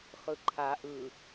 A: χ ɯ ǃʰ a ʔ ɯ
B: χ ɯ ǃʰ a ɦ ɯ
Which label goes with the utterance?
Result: A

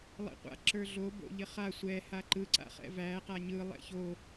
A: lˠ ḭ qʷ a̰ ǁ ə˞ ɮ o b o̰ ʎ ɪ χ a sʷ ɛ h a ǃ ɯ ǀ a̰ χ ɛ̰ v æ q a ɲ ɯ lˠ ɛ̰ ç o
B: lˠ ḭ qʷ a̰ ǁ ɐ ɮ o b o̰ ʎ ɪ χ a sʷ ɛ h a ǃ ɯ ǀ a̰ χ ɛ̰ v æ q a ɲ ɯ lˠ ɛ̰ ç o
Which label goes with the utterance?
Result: A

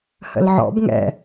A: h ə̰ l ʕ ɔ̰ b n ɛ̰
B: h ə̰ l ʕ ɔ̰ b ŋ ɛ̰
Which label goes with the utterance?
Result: B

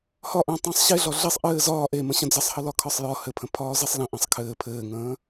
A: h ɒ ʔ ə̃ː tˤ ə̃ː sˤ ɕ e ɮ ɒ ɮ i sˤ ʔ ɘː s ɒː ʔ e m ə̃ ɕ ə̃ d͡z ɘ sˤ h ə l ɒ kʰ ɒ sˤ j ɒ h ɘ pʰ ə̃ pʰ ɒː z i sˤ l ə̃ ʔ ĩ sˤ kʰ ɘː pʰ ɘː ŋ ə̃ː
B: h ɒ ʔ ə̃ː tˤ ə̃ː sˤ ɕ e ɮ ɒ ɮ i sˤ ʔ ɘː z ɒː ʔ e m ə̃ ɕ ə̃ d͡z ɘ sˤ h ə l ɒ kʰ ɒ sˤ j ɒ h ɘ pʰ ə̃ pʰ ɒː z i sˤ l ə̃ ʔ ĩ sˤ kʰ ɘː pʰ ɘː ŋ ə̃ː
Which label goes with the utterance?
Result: B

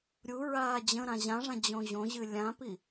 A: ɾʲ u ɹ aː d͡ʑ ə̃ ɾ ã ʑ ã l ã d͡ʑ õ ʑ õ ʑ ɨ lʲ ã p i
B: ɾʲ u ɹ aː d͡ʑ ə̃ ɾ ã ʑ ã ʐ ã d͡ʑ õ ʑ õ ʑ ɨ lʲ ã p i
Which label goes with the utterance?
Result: B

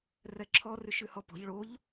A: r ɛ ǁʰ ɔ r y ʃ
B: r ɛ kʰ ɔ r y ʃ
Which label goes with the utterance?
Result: A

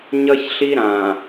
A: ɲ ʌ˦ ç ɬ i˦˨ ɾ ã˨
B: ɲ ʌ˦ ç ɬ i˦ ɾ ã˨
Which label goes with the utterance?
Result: B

